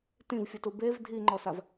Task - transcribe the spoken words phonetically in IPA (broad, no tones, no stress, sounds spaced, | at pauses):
t ĩ v fʲ u t u b e v dʱ i ŋ͡ǃ ɔ s a v